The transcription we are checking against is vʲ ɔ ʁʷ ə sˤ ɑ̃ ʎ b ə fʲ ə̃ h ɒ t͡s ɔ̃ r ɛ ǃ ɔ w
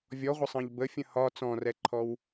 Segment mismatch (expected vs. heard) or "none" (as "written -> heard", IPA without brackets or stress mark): ǃ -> ǃʰ